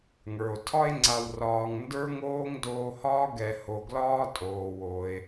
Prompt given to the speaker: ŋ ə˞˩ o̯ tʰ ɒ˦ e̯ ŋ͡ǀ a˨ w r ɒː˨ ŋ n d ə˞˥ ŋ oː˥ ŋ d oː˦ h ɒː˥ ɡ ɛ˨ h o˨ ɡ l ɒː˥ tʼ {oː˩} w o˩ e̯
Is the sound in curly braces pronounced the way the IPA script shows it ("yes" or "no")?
yes